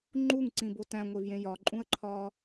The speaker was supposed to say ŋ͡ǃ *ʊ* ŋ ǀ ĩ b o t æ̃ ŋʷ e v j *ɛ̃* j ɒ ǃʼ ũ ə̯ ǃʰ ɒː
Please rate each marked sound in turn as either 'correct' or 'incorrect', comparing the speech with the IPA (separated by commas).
incorrect, incorrect